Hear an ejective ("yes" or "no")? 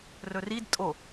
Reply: yes